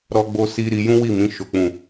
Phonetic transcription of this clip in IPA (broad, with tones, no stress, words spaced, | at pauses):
ɾɔ˦ɡ͡bo˦si˦ ɾi˧jũ˦wi˦˨mĩ˨˦ ʃo˦k͡pũ˦˨